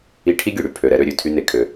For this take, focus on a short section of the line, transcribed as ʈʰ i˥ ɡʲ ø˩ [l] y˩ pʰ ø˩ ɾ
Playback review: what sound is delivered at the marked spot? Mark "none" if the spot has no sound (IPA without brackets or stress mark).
ɽ